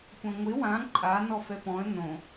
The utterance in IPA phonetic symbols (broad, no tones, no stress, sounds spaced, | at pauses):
kʷ ã ŋʷ ɪ w ã ǃʼ a n ɔ f ɛ p ɔ̃ ə̯ n õ